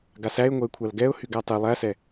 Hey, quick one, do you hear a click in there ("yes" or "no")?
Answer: no